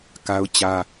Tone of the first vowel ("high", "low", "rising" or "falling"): high